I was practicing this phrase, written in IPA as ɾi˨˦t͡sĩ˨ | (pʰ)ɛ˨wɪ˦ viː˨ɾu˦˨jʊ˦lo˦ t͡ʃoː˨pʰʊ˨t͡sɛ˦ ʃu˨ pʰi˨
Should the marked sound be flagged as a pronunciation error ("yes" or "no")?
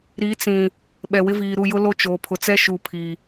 yes